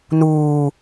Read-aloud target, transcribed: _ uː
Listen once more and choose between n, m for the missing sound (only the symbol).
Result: n